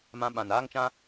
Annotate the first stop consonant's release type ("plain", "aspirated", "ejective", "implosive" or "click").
implosive